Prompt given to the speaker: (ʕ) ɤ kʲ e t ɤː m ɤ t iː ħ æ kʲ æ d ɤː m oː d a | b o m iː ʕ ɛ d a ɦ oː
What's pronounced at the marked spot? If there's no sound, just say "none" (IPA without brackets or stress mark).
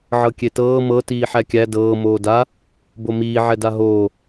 ʕ